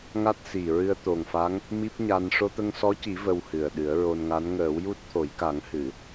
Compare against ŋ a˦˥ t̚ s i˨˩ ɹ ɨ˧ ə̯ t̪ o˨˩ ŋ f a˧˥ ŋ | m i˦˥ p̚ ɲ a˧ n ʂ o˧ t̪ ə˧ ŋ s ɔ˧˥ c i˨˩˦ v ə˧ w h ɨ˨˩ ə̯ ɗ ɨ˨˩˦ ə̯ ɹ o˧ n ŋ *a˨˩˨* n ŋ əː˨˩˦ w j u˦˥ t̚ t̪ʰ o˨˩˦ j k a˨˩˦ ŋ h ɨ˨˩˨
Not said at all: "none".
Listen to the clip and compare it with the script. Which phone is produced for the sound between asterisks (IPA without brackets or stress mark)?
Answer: a˧˥